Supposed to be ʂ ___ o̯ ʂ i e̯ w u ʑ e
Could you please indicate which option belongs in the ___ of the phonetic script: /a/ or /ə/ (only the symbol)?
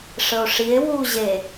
ə